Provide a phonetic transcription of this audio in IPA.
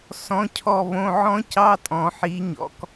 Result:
sɔ̃˩˧˩cʰɔ˧˩βõ˩˧˩ ʕɔ̃˦˥cɑ˧˥˧tʼɔ̃˩ ħi˩˧ ɲɔ̰˩˧˩k

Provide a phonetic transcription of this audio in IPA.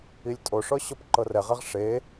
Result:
ilʲtʼoʂɔ ɕɔpǃɤrɛʁɛʁ ʂe

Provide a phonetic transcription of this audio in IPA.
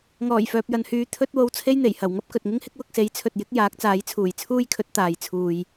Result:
ŋɔː˨˩jfœː˨p̚jɐ˨nhyː˨˧ t̪ʰɵ˥t̚ wo˧wt͡sʰe˥jn̪e˨˩jhɐ˨˩w ŋɐ˥p̚kɵ˨t̚ŋɪ˥ŋhɪ˥k̚ wʊ˧k̚se˨˥jt͡sʰɵ˨t̚ jɪ˨˥k̚ jaː˨˥k̚t͡saː˨˥jt͡sʰuː˨˩j t͡sʰuː˥jkʰɵ˨˥t̚ t̪aː˨j t͡sʰuː˨j

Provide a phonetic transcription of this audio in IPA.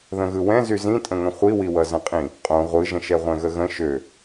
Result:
ðə̃ɣɯwɛ̃ zyzĩtʼə̃ŋə̃ χʷiwiwʌ zə̃qʼĩ | qʼõ ʁʷɯʒə̃ʃɛ ʁʷɛ̃ɣəɣə̃ ʃø

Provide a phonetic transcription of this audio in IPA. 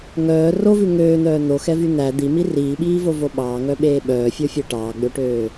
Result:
ŋœː rovʉ ŋøːn̪œː n̪oxɛvy n̪æ d̪imi riːɓiːvovo ɓɑːŋœɓeː ɓœːfʲofʲɛ ʈɑːɡ͡bøʈøː

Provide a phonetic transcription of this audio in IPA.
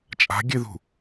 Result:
t͡ʃʼa̤ɡʲɨðṳ

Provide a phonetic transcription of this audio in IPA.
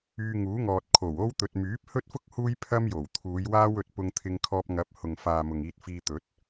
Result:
yː˧ŋuː˨˥ŋɔː˨t̚ kʰo˨˩wo˥w t̪ɵ˨t̚myː˨˥p̚hɵ˥t̚fʊ˥k̚ huː˥jpʰɐ˥mjo˨˩wt̪ʰuː˨˧j waː˥wɵ˧t̚pʊ˧ŋ t̪ʰɪ˧ŋkʰɔː˧p̚ ŋɐ˧p̚ hʊ˨ŋfaː˨ mʊ˨ŋiː˧t̚fiː˧ t̪ɵ˨˥t̚

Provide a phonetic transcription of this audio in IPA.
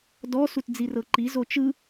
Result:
dɔ sutd͡zirɤǃi zot͡ʃɯ

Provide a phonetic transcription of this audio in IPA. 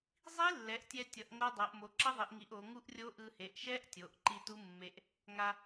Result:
zˤi˦˥ lːɛ˩˧ʔtʲɛ˧tʲʌ˩˧ʔ ŋo˦˥dˤo˩˧ʔ mo˩˧ǁʌ˦˥ðˤi˩˧ʔŋi˩˧ʔ o˩˧ ŋu˦˥ʔrʲo˦˥ʔɯ˧ he˩˧ʔʃɛ˦˥ʔtʲo˩˧ʔ ǃi˧tu˦˥mːe˧ʔ | ŋa˧

